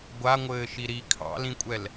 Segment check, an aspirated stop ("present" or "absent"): present